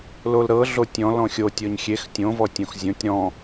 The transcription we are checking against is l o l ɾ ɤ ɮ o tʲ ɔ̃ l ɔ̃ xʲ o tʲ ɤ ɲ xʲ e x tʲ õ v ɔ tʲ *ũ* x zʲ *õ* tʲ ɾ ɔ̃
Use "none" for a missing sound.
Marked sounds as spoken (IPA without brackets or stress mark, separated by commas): õ, õ